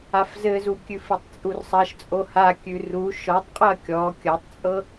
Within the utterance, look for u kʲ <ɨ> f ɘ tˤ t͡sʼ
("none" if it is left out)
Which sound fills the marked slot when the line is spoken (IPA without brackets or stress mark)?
ʉ